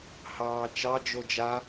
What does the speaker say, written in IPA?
hɑːt͡ʃɑ d͡ʒod͡ʒa

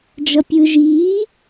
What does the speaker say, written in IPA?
d͡ʒʌpʲɯːʒiː

